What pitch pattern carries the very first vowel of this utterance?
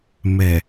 low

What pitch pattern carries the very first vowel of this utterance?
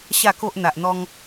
low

